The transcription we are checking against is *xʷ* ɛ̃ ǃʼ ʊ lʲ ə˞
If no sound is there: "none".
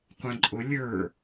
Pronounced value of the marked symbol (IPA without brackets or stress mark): qʷ